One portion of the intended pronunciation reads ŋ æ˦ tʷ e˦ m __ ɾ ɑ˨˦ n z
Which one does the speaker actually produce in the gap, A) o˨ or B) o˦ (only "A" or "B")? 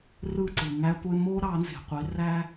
B